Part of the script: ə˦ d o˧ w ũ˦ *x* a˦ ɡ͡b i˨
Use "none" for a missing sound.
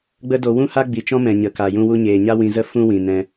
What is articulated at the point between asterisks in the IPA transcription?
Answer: h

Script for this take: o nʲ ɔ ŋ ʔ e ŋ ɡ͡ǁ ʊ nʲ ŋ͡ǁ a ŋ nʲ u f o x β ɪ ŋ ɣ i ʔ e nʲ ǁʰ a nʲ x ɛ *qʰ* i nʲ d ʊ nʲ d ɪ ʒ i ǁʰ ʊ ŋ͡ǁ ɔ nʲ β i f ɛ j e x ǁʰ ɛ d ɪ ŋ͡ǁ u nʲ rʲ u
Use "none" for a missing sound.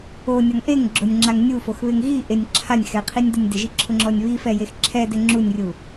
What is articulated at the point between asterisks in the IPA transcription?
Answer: qʰ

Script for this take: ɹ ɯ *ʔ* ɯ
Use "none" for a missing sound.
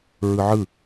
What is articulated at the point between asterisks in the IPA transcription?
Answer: ʕ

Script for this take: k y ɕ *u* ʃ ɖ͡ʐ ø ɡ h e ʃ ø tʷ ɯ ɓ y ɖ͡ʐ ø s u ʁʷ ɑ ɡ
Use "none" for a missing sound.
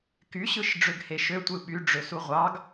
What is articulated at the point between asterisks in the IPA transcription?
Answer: ɯ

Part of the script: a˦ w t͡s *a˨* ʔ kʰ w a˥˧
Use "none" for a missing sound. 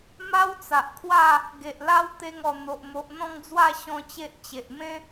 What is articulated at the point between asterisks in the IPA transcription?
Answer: a˨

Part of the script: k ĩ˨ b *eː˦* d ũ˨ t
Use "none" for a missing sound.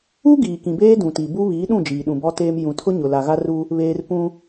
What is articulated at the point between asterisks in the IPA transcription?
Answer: eː˦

